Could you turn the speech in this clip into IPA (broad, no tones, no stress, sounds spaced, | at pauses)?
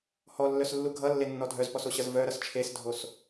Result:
h ɔ lː œ s lː u ɡʱ ʌ lː e nː ɔ dʱ œ z p ɔ s o ɕ ʌ z v œ ɾ ʌ s t͡ʃʰ e s dʱ o s